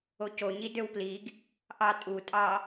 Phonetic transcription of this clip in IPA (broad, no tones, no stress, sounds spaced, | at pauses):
o c o ɲ i d ø w p l i ɡ | ʔ ɑ tʼ u tʼ ɑ